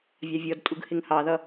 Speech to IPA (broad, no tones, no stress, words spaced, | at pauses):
vʲɑvʲɔdtʼuɡ hɪŋhɑðʌ